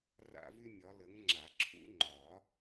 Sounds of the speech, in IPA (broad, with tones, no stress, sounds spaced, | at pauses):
r a̰˥ v y˥ mʲ ɒ˨˦ l ə˨˦ ŋ ŋ͡ǁ a˨˩˦ ǁʰ ṵ˥ ŋ͡ǃ ɒ˨˩˦